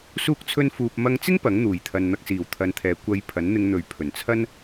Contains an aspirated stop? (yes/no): yes